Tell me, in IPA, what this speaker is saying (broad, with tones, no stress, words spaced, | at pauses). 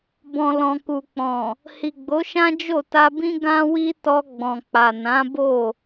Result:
bɔ̃˨lɔ̃˨ku˨k͡pɔ̃˨ | hi˨ɡ͡bo˨˦ʃã˦ d͡ʒo˦˨ta˧bĩ˦ ɡã˦wi˦ tɔ˧ɡ͡bɔ̃˨k͡pa˨ nã˨˦bo˦˨